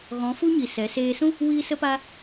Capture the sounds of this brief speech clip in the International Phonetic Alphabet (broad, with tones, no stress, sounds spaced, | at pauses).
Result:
ɣ ɔ̃˨˦ f u˦ ɲ i˨ s ɛ˨˦ s eː˧ s ũ˦ | w iː˦ s ə˦ p a˦